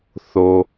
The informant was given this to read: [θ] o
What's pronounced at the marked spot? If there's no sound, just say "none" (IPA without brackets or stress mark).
θ